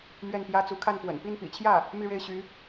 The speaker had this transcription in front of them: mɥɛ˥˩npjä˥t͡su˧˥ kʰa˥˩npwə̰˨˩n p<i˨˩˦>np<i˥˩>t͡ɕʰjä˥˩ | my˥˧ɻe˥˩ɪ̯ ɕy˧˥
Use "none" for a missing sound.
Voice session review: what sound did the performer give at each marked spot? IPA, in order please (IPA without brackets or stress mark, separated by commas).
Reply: i˥˩, ḭ˨˩